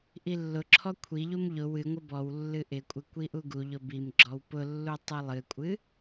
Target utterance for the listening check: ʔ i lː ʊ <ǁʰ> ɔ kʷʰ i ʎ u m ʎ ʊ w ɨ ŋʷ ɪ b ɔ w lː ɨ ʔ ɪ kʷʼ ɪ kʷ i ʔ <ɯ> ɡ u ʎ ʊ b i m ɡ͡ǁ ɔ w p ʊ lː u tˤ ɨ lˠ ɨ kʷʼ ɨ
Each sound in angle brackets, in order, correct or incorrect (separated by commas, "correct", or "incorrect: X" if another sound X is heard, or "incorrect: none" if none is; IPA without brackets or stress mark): correct, incorrect: u